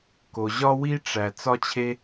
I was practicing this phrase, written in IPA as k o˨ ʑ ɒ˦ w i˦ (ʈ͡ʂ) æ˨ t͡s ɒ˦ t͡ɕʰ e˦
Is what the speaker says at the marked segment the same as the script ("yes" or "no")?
yes